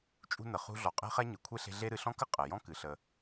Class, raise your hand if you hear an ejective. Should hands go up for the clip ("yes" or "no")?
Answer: yes